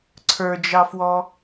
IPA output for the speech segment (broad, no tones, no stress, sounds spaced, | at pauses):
ǀʰ ə˞ d͡ʒ ɑ f w ɔ